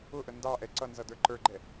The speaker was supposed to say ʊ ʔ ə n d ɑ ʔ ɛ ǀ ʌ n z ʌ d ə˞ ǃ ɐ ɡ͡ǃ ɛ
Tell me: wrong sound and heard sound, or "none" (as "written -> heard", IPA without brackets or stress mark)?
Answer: ɐ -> ə˞